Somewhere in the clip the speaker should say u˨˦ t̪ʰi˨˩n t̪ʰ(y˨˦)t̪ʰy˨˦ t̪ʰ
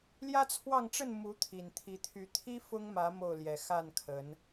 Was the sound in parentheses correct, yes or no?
no